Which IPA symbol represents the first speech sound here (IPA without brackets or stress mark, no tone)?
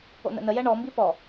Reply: o̰